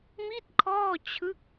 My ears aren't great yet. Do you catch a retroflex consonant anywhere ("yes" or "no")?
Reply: no